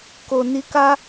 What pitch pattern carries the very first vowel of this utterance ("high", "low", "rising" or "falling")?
low